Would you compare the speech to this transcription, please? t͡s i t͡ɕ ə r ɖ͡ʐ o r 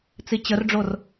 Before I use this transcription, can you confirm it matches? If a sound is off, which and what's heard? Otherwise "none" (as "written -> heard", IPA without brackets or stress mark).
none